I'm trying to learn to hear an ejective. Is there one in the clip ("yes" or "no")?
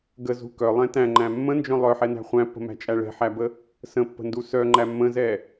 yes